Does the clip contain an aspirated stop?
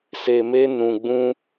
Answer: no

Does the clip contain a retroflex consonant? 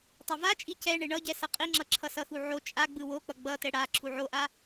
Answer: yes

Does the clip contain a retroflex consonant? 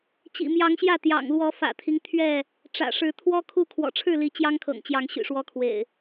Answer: yes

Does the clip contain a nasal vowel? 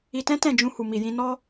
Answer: yes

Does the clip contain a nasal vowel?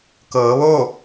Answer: no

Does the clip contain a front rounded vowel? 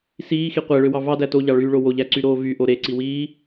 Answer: yes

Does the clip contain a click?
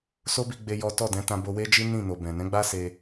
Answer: no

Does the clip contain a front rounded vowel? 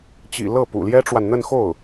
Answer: no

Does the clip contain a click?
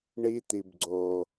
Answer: yes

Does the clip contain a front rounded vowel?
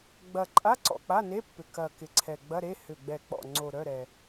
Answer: yes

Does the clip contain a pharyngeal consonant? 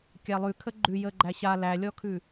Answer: no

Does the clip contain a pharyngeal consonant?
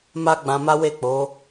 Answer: no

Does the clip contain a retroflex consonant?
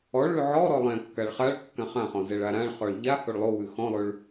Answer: yes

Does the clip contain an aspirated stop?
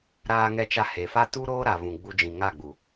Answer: no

